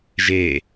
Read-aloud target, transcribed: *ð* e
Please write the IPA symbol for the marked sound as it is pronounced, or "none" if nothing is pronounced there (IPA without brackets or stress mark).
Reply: ʒ